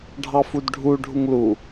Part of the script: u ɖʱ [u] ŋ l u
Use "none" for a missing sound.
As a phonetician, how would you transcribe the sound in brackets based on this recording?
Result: u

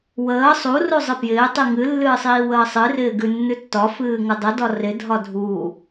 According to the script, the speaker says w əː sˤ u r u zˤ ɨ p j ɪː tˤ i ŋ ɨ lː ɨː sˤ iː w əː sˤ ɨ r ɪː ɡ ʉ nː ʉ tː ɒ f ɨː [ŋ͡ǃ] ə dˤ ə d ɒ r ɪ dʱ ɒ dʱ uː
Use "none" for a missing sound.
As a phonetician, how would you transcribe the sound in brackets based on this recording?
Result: ŋ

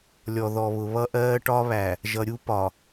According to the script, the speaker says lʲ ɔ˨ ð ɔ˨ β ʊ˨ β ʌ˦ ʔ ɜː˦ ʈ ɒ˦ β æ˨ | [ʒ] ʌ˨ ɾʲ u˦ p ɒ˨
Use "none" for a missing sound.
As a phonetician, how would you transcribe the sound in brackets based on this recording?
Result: ʒ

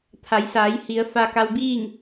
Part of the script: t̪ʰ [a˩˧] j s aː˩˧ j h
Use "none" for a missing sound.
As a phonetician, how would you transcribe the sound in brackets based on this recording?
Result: a˩˧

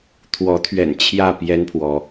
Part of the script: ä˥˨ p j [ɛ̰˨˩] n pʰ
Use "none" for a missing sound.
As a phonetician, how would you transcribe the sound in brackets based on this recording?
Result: ɛ˦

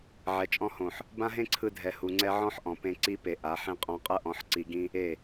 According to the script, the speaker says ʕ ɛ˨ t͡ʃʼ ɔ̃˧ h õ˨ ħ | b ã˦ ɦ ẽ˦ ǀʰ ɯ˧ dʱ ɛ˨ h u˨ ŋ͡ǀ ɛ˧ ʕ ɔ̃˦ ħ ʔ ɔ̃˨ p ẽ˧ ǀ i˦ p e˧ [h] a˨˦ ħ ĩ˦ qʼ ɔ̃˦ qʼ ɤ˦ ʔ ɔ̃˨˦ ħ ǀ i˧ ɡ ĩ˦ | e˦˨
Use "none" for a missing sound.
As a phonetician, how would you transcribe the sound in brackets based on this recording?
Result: ʔ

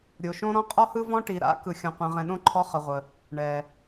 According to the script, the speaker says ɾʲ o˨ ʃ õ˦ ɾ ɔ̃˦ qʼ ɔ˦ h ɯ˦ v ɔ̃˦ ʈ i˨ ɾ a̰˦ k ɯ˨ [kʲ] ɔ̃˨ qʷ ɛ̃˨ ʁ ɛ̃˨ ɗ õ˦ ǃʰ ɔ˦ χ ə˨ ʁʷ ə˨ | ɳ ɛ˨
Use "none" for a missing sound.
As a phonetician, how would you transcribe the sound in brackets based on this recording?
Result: xʲ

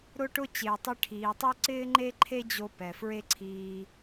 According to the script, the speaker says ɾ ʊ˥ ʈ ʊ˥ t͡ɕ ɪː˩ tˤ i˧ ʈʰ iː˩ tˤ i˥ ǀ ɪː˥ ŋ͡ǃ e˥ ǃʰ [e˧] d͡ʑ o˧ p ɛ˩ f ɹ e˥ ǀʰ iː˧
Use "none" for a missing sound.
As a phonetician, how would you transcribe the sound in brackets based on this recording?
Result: e˥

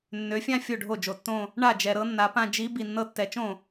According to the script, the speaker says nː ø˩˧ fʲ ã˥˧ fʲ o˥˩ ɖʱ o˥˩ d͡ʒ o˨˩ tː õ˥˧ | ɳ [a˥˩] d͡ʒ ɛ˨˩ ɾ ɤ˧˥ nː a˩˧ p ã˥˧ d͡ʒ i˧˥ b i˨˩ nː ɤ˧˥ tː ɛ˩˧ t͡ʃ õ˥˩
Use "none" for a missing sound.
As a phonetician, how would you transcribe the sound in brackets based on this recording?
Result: a˥˩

